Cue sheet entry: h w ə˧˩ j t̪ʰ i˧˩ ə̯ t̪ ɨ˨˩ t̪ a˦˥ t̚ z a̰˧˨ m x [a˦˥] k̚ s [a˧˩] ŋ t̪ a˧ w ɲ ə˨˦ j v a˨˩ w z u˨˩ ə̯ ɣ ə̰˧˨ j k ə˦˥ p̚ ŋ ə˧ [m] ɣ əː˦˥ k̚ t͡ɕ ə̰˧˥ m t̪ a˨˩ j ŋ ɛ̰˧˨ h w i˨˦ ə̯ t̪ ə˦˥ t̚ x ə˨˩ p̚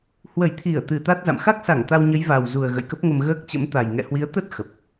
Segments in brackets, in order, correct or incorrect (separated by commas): correct, correct, correct